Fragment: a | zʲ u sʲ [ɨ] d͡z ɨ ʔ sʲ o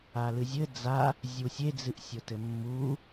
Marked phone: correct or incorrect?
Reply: incorrect